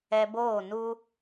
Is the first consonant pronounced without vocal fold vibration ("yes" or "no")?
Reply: no